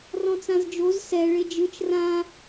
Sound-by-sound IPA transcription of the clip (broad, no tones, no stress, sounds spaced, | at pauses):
r ɔ̃ t͡s ã z d͡ʒ o z s ɛ ɭ e d͡ʒ ɯ t͡ʃ r ã